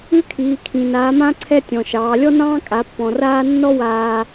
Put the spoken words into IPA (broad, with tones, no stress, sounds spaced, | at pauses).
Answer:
ʉ˧˥ kʰ iː˩˧ kʰ ĩ˩ n aː˩˧ m ã˧ ǀʰ ɛ˧ tʲ ɔ̃˩ ʃ ɑː˩˧ lʲ ɔ˥ n ɑ̃ː˥ kʼ a˩˧ pː ɔ̃˩ r aː˧ nː ɔ˥ w aː˧